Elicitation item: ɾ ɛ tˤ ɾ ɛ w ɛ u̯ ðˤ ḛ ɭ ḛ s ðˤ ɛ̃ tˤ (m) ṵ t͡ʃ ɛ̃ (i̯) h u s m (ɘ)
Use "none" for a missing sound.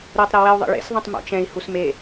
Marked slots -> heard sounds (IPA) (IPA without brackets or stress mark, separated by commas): m, i̯, e